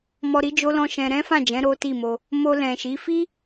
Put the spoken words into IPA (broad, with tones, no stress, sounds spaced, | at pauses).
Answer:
m ɔ˧ ɾ i˦ d͡ʒ o˦ l ɔ̃˦ ʃ ɛ̃˧ ɾ ɛ̃˦ f ã˦˨ d͡ʒ ɛ̃˨˦ ɾ o˦ t i˦˨ m o˧ | m o˧ l ɛ̃˨ ʃ i˨˦ f i˦